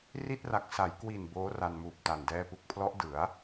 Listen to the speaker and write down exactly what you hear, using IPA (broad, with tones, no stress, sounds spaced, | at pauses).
r i˥˩ t̚ r a˨˩ k̚ s a˩˦ j k w i˨˩ n b oː˦˥ r a˧ n m uː˨˩ p̚ t a˨˩ n d ɛː˧ p u˨˩ k̚ pʰ l ɔ˦˥ ʔ d ɯ˩˦ a̯